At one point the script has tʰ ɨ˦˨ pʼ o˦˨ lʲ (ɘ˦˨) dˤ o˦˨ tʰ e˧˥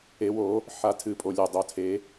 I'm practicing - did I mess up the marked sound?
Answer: no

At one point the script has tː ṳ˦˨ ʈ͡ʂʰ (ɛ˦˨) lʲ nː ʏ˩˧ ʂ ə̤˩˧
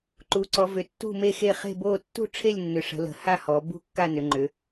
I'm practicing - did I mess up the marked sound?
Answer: yes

